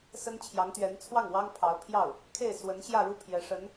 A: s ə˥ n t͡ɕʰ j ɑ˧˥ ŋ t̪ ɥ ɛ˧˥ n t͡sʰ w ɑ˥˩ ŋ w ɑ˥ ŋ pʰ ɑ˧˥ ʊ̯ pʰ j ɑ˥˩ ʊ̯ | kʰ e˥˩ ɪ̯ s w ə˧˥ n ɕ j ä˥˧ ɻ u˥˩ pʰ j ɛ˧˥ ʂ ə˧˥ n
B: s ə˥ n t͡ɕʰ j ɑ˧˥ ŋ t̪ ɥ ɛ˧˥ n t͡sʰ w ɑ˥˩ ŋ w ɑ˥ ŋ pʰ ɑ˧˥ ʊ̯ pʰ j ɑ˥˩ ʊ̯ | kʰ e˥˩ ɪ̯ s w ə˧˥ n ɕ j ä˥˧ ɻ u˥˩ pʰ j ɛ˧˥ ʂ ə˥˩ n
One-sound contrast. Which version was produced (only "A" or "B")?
A